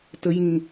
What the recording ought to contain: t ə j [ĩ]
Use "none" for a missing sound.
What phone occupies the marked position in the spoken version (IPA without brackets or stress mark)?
ĩ